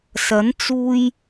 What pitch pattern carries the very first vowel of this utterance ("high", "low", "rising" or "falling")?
rising